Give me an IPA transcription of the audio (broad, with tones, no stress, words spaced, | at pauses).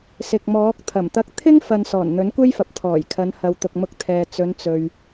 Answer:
sɪ˨k̚mɔː˨˥k̚ t̪ʰɐ˨˩mt̪ɐ˧k̚ t̪ʰɪ˥ŋfɐ˨n sɔː˨˩nn̪ɵ˨˥nkʷe˥jfɐ˨p̚ t̪ʰɔː˨˩jkʰɐ˨˧nhɐ˨w t̪ʊ˨k̚mʊ˧k̚t̪ʰɛː˨ t͡sɵ˨˧n t͡sɵ˧ɥ